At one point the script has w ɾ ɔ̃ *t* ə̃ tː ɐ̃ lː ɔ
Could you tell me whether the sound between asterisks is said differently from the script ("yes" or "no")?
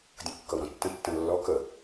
yes